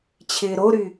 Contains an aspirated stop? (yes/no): yes